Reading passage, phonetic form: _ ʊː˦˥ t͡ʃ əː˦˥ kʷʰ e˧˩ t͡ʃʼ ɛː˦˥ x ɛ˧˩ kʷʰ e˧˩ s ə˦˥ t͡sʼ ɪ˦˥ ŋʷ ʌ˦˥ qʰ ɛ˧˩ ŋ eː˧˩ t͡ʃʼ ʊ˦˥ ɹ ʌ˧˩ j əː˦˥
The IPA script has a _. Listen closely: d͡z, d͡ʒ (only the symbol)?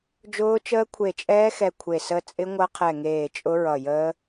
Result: d͡ʒ